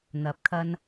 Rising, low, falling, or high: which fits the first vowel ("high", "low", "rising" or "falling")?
rising